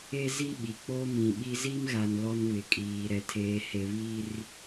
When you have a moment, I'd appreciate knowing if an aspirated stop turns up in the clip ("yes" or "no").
yes